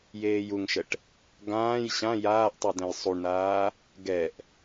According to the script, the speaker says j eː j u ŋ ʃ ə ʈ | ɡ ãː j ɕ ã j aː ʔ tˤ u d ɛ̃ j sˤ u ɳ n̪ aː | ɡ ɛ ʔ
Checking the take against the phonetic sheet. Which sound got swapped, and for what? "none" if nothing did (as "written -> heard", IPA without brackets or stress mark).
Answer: none